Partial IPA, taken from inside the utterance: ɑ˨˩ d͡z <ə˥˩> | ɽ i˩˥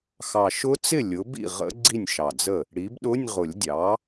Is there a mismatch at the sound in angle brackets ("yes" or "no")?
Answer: no